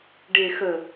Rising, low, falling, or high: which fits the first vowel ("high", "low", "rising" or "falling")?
low